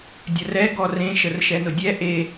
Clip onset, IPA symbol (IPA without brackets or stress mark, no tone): dʲ